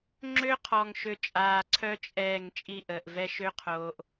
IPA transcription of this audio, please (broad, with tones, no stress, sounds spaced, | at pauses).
ŋ͡ǁ ø˦ qʰ ɔ˨ ŋ ʃ ø˧ t͡ʃʼ aː˨ ǀʰ œ˦ t͡ʃʼ ɛː˦˨ ŋ t͡ʃʼ i˦˨ ʔ əː˨ ʔ v ɛ˦ ʃ ø˦ qʰ oː˨ ʔ